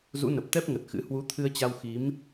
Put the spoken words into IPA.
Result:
zṵ˧˥nə˨˩p̚ t̪ɛ˦˥p̚ŋə˨˩t̚xɨ̰˧˥ hwu˨˦t̪ʰɨ˧ə̯t͡ɕa˧w xi˨˦m

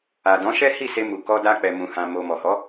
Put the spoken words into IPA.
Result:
a˨dɔ̃˨˦ʃɛ˦ hi˦˨se˧mu˨ kɔ˧da˧k͡pɛ˨ mũ˨ hã˨mo˨ mɔ˨hɔ˨˦

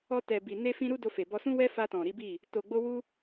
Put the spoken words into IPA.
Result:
ɔ˧ tɛ˨bi˨ ne˧fĩ˧ ɾu˦do˧ fe˨bɔ˧sũ˦ wɛ˦fa˧tɔ̃˨ ɾi˨˦bi˦˨ | to˨ɡ͡bo˧wu˧

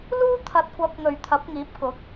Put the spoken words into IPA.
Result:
luː˥t̪ʰɐ˨t̚kʷɐ˨˥p̚ŋɵ˨˩ɥ t̪ʰɐ˨˥p̚ŋiː˨˥p̚ kʊ˨˥k̚

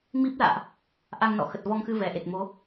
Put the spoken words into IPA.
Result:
mi˦˥p̚la̰ː˧˨ʔ | ʔa˧ŋnɔ̰˧˨ xə˨˩t̚vɔ˧ŋxɨ˧ vɛ˧˩ʔe˨˩t̚mo˨˦

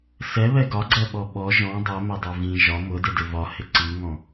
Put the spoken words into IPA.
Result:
sɛβɛ ɡɒɡ͡ǀɜɓɔ ɓɔ ʒɔ̃ dˤɜmedˤe vĩ ʒɒ mʊdɪdɪ vɒhɪ ǀiŋɔ̃

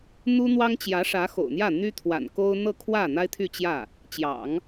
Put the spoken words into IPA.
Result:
n̪u˥n̪wɑ˥ŋt͡ɕjä˧˥ ʂä˧˥xo̰˨˩ʊ̯n̪jä˥˩ n̪y˥t̪ʰwa̰˨˩nko˥ʊ̯ n̪ɤ˥˧kʰwä˥˩ n̪a˥ɪ̯t̪ʰy˥˧t͡ɕjä˥˩ | t͡ɕjɑ̰˨˩˦ŋ

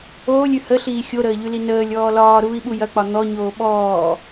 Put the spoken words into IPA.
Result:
oːlʲʉ həɬiː xʲoɾəːʎʉli nəːlʲ ɔːlɒː ɾuːi̯ɓujɐk͡pɒ n̪ɔɲoː ɓɔː

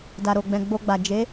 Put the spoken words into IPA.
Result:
da˨ɾo˨ɡ͡bɛ̃˨ ɡ͡bo˧ɡ͡ba˨ d͡ʒe˨˦

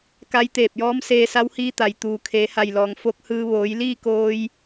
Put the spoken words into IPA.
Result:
ka˧˥jt̪eː˧˩p̚jɔː˧˥m seː˧sa˧˥whiː˧˥t̪a˩j t̪uː˩kʰeː˩˧ha˧˩jlɔː˩ŋ fo˧˥k̚hɯː˧ ʋoː˩˧jliː˥˨koː˧j

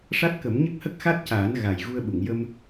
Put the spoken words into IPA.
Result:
ʂa˦˥t̚kə˨˩˦m ɲə˦˥k̚hə˦˥k̚xa˦˥t̚caː˨˩˦n ɣa˨˩j ɣu˧ə̯ɓu˨˩˨ŋ jə˧m

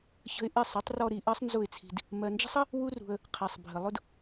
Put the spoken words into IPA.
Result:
çə̤˧ɪ̯ʔɪ˦˨ sˤɪ˨˦tˤrɔ˧ɾi˨ ʔɜ˦sˤnzʊ˦˨ɪ̯t͡sʰi̤˧d | mɜ˨nd͡ʒə̤˦sˤə˦ | wu˦rṳ˧ə̯ | qʰæ˨sˤ bʱə˨lˠʊ˦d

